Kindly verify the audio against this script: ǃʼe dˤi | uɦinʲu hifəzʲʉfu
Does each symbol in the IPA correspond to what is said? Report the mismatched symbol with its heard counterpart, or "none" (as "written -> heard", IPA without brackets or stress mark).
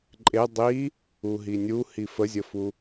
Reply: ʉ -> ə